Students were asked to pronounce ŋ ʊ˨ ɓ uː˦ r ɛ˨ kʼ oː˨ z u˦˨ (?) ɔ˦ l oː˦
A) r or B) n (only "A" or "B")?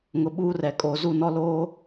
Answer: B